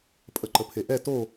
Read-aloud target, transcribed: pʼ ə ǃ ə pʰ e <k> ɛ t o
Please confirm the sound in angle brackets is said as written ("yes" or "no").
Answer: no